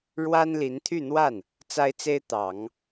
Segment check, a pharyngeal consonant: absent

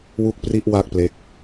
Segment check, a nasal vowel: absent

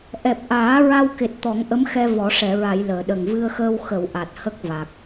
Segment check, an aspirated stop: absent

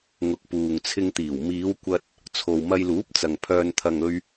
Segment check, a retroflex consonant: absent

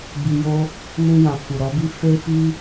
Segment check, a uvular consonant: absent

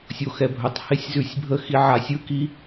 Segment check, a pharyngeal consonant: present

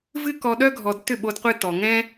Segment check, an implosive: present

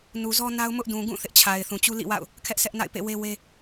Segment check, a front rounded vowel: absent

